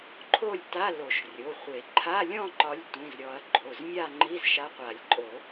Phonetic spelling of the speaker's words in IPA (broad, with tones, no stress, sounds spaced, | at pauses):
ǃʰ o˥˧ lʲ t a˧˥˧ l o˨˩˦ ʃ rʲ o˩˧˩ χʷ e˨˩˦ ǃʰ a˧˥˧ lʲ ɔ̃˥˧ ǃ ɒ˨˥ lʲ tʷ ĩ˩˧˩ z ɾʲ ɔ˨˩˦ ɐ̯ ɡ͡ǃ o˩˧˩ z mʲ a˥˧ ŋ͡ǃ i˧˥˧ z ʃ a˨˥ qʷ a˨˩˦ lʲ ǃʼ o˨˩˦